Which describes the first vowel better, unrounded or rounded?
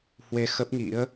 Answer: unrounded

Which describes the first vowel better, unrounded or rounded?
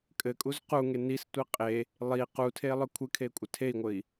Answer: unrounded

